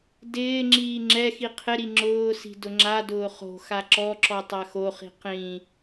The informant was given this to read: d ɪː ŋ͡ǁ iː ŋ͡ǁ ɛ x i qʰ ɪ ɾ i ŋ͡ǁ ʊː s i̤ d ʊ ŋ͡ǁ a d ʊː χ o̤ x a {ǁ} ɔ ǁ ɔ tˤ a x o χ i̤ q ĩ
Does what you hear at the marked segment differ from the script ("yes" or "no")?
no